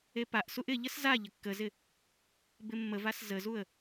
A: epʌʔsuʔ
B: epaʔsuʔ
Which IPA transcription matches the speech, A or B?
B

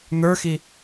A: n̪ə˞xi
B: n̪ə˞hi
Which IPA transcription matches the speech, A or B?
A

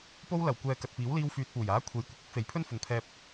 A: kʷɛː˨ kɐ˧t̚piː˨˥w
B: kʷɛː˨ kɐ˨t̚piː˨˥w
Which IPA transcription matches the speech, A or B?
B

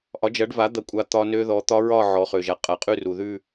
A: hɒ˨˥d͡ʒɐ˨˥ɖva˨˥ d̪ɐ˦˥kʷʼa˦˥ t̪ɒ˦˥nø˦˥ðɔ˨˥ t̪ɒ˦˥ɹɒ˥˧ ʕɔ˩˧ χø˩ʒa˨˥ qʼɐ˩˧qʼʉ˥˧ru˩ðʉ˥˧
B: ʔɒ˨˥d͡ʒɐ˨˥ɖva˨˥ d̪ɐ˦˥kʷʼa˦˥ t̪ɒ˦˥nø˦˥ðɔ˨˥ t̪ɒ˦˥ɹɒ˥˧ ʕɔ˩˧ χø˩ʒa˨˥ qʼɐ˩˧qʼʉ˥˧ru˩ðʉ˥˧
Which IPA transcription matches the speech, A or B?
B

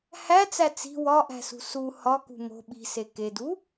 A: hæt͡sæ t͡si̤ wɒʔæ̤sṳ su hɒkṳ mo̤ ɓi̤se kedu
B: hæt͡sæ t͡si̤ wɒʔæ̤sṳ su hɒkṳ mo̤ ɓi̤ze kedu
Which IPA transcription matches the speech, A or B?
A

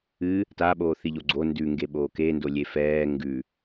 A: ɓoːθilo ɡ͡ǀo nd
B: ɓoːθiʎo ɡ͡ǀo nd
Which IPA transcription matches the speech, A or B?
B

